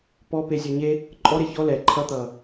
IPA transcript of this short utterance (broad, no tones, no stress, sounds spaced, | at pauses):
p ɔ p e zʲ ɔ ɲ e | ǃʼ ɔ ɾ e ç ɔ l ɛ ǃʰ ʌ t̪ ʌː